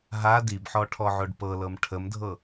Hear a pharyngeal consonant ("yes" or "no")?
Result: yes